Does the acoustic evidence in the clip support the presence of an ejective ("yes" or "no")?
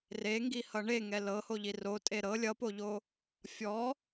yes